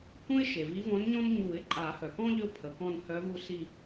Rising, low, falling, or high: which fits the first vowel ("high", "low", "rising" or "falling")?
high